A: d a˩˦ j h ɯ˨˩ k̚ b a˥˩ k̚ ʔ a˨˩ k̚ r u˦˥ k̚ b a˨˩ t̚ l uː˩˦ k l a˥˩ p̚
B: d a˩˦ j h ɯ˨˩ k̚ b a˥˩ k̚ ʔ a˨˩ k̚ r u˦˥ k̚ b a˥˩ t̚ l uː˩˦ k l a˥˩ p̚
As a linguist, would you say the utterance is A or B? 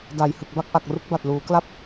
A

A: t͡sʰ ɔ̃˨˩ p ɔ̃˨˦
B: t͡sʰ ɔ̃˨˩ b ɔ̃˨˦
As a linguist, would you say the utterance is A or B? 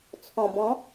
B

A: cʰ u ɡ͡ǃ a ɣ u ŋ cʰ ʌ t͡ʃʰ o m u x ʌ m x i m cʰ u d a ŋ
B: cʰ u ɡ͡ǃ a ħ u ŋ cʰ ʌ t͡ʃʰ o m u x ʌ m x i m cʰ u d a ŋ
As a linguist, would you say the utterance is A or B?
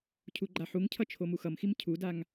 B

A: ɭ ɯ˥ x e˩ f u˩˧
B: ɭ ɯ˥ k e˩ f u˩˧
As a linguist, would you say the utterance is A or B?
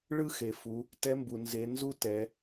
A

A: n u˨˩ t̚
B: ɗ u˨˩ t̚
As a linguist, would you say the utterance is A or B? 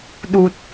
B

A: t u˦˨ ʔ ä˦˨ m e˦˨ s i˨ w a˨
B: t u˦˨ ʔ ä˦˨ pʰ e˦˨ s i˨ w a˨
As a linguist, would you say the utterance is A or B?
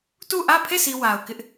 B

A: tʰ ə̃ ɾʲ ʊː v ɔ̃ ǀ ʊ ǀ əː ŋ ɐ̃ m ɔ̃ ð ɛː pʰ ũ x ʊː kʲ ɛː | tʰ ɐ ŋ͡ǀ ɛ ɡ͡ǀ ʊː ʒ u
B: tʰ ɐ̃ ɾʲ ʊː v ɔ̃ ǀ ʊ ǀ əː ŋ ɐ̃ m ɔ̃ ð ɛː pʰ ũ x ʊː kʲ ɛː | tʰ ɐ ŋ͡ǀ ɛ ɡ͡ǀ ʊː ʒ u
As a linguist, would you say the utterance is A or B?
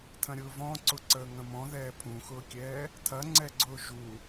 B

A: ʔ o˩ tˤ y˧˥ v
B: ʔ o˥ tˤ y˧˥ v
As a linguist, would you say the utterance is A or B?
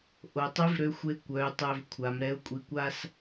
A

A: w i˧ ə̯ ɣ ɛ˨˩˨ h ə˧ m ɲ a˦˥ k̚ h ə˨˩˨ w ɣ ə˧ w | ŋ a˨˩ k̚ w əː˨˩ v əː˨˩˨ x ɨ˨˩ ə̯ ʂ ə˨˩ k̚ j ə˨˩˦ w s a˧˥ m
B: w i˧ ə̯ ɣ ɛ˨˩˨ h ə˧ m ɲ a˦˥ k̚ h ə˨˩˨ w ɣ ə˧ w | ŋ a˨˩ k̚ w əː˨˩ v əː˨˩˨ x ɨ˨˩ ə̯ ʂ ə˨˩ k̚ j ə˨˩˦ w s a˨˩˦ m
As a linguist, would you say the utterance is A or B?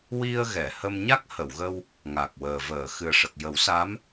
A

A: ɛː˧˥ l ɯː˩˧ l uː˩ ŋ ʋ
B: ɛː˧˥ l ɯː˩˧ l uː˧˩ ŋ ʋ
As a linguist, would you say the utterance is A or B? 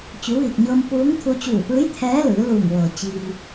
B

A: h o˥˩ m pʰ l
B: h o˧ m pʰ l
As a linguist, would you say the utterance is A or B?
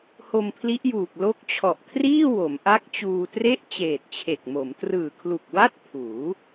B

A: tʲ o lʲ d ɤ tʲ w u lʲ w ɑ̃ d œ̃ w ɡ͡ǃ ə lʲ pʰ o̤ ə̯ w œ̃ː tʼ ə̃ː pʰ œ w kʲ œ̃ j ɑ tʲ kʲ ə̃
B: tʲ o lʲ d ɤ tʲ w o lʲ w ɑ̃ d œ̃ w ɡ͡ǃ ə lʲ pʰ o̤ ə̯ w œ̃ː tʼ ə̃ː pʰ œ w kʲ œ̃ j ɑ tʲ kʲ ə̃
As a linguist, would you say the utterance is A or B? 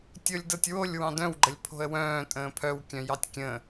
B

